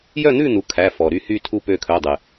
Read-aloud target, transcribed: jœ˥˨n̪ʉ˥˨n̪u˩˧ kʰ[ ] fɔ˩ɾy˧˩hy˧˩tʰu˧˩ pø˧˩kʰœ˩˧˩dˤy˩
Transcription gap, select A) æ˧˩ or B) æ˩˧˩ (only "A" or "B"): B